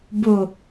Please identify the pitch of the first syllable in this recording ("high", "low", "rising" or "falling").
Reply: low